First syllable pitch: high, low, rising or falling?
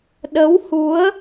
rising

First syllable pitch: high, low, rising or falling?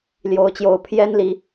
rising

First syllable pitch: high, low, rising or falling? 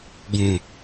low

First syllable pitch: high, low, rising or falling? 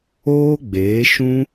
high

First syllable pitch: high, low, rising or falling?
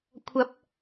rising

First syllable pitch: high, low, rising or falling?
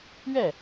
falling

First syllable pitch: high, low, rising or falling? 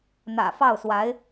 low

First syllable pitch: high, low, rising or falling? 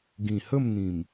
low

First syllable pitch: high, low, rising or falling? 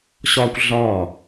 high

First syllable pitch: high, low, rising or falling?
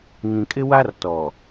low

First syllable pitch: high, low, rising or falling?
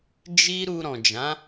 high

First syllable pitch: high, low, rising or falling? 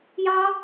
high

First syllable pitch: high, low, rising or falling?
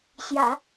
low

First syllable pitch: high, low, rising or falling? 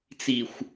low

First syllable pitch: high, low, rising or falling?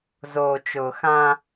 low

